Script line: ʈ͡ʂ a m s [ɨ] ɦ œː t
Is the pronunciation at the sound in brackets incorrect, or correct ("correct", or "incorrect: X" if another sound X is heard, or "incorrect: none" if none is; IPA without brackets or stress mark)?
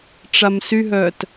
incorrect: y